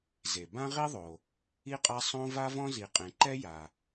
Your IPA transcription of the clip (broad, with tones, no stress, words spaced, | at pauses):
ze˩ bã˥ʁi˥ðˤo˩ | i˥qʼa˥ sˤõ˥ va˥vɔ̃˥ zi˩qʼẽ˩ǃɛ˥ ja˩